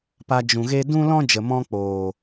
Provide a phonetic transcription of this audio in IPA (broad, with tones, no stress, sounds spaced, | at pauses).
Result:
p a˧ d͡ʒ ũ˨ ɣ e˦ d ũ˦ l ɔ̃˦ d͡ʒ ə˨ m ɔ̃˧ k͡p oː˨